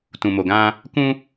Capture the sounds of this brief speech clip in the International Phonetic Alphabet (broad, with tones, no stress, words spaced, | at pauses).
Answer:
tũ˨mo˨ɡã˧ | kũ˧